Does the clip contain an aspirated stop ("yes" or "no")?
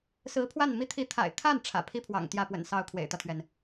yes